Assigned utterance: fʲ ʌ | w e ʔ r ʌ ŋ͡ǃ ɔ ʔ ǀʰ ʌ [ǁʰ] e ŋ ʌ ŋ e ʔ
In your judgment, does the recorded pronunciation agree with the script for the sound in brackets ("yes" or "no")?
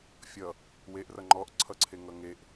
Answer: no